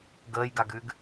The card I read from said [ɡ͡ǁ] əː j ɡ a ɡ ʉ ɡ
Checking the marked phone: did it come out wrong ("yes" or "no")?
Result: yes